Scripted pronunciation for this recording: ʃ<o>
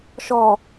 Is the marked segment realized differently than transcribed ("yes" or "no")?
yes